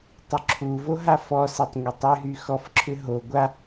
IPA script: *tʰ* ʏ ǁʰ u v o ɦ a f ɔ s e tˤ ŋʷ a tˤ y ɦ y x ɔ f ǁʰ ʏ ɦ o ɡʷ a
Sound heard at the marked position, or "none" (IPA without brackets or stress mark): tˤ